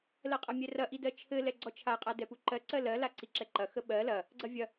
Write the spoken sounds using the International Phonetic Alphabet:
l ɜ qʼ ɐ mʲ ɛ r ɐ ʔ i d ɜ t͡ʃʰ ɘ l ɛ ɡ͡ǀ ɔ t͡ʃʰ a qʼ a d ɛ p u ǃ ɜ ǀ ɜ l ɜ l a ǀ i ǁ ɛ ǃ ɐ x ə ɓ ɜ l ɐ | ɡ͡ǀ ɐ vʲ ɐ

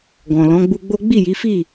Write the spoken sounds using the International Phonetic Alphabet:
ɡ ɔ̃˨ l ɔ̃˨˦ ɡ͡b u˧ ɡ͡b o˦ ɡ͡b i˦˨ j i˨˦ f i˦˨

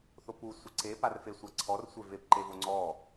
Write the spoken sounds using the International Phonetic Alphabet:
θ o p u sʷ ə ǀ e p a r f e sʷ a ǀʰ ɔ r sʷ e v e p ǃ e v o ŋ͡ǀ ɔ

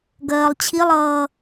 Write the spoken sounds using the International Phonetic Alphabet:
ɡ ɜː lˠ t͡ɕʰ i lˠ ʌː

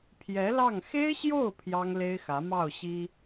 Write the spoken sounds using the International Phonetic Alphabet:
pʰ j ɛ˧˥ l ɑ˥˩ ŋ x e˥ ɪ̯ ɕ j o˥˩ ʊ̯ pʰ j ɑ˥ ŋ l e˥ ɪ̯ x ä˧˥ m ɑ˥˩ ʊ̯ ɕ i˥

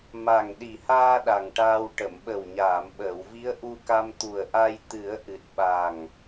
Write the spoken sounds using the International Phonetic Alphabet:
m a˨˩ ŋ ɗ i˨˩ h aː˧ ɗ a˨˩ ŋ ʈ aː˧ w ʈ ə˨˩˨ m ɓ ə˨˩ w ɲ aː˨˩˨ m ɓ əː˨˩˨ w v i˧˥ ə̯ ʔ u˧ k a˧ m t̪ u˨˩ ə̯ ʔ a˧ j t̪ ɨ˨˩˦ ə̯ ʔ ɨ˨˩ t̚ ɓ a˨˩ ŋ

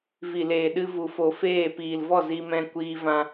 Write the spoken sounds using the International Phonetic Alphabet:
v i˨ l eː˨ ɗ ɨ˧ v u˨ f o˨ f eː˦˨ p iː˨ l v ɔ˦˨ z i˧ m ɛ̃˧ kʷ iː˦ v ã˦

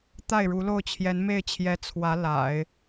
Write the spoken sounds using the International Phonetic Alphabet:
t̪ a˥˩ ɪ̯ ɻ u˧˥ l o˥˩ ʊ̯ t͡ɕʰ j ɛ˧˥ n m e˥˩ ɪ̯ t͡ɕʰ j ɛ˧˥ t͡sʰ w ä˧˥ l a̰˨˩˦ ɪ̯

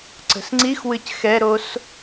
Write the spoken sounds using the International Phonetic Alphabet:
ǀ ə̤ s ŋ͡ǀ i x w ɨ c x ɛ ɾ o s

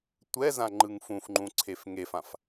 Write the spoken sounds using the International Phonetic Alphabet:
tʷ ɛ z ã ŋ͡ǃ ɯ ŋ f ũ f ŋ͡ǃ ũ ǀʰ e f ŋ e f ã f

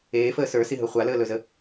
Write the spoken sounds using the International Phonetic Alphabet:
eː f əː s ə˞ s i ɦ ɵ χʷ a l əː l ɵ z ə

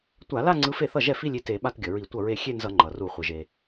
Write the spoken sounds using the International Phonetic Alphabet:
tʷ a˧˩˧ l a˥˧ ŋ͡ǀ ɯ˧˥ f e˥˩ θ ʌ˥˩ ʒ ɛ˥˩ f i˥˧ lʲ i˥˩ t e˧˩˧ ɓ a˥˧ t ɡʲ ʌ˩ ɹ i˧˩˧ tʷ ʌ˥˩ ɹ e˥˧ xʲ e˥˧ n z ʌ˧˩˧ ŋ͡ǃ ʌ˩ r u˧˩˧ χʷ ɯ˩ ʒ e˩

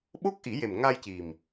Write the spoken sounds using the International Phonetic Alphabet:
ɓ o˦˥ k̚ ʔ i˨˩˦ j e˨˩ m ŋ a˧ j c i˨˩ m

